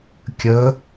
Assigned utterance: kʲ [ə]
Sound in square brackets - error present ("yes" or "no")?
no